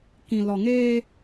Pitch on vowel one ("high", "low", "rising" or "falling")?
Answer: low